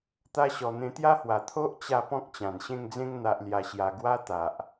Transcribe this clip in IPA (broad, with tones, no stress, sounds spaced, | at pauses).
t̪ a˧ ɕ ɔ˨˩ n̪ ẽ˧ t̪ j a˦ h w a˨˩ t̪ʰ o˦ ʔ t͡ɕ a˧ p ɔ̃˦ k̚ t͡ɕ ã˨˩ n ɕ ẽ˥˧ ŋ d͡z ẽ˦ ŋ n̪ a˨ ʔ l j a˨˩ ɕ j a˨˩ ɡ w a˦ t̪ a˨ ʔ